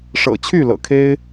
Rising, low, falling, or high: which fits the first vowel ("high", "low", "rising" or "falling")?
low